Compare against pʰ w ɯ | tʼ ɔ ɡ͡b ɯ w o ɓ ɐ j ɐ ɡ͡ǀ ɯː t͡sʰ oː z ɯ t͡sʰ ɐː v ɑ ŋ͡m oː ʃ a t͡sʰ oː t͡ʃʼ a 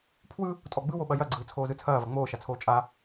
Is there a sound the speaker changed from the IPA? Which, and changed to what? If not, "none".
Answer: ɑ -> ɐ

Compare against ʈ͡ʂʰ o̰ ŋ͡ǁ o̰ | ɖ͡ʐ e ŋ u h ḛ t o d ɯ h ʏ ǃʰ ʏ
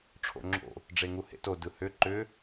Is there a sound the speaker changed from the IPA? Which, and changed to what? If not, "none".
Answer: ǃʰ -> ǃ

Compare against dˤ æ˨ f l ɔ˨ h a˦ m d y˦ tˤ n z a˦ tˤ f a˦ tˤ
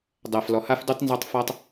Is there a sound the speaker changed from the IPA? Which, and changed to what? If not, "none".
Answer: m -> f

